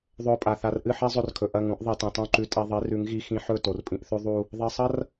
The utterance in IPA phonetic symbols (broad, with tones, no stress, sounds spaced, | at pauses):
ðˤ ɵ˧ ʊ̯ pʼ a˨ θ a˧ r ʔ ɨ˦˨ ħ e˦ zˤ ɵ˧ r kʰ ɵ˨ ʔ ɐ˦˨ ŋ ũ˨˦ ʔ ðˤ i˨ t ĩ˨ tˤ ũ˦˨ ǃ ʉ˧ tʼ e˧ ðˤ i˨˦ r ʉ˨˦ ŋ ɣ i˧ x ĩ˧ ħ ɵ˦˨ t o˨ r pʼ ĩ˧ ʔ θ ʉ˦ ðˤ u˦ | ðˤ i˨ sˤ ɐ˦ r